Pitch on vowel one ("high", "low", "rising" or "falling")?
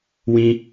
high